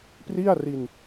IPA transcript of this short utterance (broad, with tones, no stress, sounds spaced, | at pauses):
p r i˥˩ a̯ r i˧ n